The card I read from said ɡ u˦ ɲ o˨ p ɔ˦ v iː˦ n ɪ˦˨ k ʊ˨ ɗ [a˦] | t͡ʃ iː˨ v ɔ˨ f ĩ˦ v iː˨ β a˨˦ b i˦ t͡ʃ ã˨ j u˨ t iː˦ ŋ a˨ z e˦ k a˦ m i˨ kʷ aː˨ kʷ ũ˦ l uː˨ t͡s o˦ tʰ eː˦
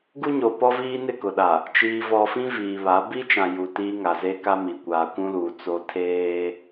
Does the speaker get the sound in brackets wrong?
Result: yes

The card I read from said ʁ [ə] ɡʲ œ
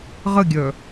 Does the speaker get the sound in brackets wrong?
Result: no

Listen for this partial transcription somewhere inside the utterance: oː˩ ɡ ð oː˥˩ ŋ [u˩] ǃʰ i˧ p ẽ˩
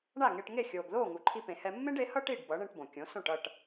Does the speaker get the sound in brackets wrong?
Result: no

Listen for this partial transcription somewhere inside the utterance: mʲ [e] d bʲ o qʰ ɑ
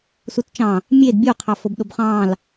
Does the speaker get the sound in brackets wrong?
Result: no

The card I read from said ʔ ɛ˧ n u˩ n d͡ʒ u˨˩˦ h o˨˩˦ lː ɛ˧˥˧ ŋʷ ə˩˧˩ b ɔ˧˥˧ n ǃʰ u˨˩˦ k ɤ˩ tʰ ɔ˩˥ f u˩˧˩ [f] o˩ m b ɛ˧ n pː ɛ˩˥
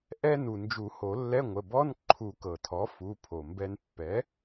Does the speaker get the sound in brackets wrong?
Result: yes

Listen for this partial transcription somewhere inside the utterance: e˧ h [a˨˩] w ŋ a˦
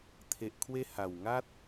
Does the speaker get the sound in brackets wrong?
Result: no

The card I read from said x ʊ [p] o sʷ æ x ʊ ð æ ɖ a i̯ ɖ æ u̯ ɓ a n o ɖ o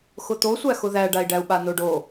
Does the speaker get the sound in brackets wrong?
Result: yes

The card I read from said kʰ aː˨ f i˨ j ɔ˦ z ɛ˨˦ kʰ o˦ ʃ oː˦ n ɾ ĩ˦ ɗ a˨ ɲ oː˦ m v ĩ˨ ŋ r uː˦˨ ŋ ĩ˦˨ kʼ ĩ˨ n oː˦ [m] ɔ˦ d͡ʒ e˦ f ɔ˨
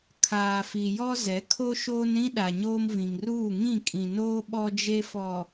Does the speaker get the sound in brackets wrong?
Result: yes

